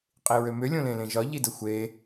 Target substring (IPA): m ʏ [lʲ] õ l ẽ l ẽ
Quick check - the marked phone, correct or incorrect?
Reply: correct